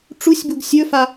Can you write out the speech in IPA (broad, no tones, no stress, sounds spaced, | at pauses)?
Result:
ʈ͡ʂ u sʲ b u ɡ sʲ ɵ f a